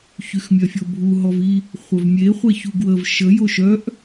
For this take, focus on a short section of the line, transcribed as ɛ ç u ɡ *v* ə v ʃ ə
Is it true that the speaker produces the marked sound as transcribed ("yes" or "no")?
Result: no